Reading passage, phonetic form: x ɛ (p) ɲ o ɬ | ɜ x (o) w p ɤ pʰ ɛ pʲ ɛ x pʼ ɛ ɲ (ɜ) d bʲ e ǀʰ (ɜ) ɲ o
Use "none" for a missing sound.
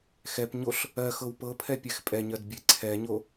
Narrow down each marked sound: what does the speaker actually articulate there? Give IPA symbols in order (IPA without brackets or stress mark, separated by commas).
p, ɤ, ɜ, ɛ